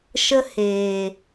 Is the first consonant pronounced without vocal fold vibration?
yes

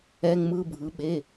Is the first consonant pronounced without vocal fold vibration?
no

